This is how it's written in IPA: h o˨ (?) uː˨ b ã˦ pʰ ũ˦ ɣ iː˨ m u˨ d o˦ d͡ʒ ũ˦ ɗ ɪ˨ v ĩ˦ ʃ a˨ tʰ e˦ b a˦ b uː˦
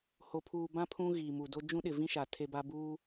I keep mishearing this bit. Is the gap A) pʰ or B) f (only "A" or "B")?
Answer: A